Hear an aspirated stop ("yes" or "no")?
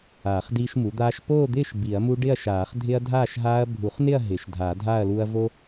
no